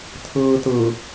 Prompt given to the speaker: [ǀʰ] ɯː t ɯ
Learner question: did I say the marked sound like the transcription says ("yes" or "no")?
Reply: no